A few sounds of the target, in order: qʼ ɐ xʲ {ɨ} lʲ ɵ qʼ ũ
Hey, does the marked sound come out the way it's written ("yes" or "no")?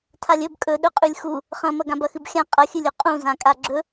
yes